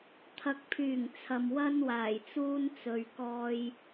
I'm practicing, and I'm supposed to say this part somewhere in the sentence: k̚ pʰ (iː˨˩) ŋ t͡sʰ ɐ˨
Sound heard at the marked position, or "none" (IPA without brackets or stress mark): yː˨˩